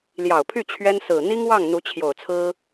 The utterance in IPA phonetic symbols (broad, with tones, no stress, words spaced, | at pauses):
ljɑ˨˩ʊ̯pʰy˥˩ t͡ɕʰɥɛ˥n sɹ̩˨˩ n̪i˥ŋwɑ˥˩ŋ n̪u˧˥t͡ɕʰjo˨˩ʊ̯t͡sʰɹ̩˥